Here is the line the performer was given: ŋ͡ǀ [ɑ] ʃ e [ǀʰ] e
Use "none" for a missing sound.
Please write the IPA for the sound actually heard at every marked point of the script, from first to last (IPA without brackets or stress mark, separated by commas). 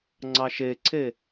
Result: ɑ, ǀʰ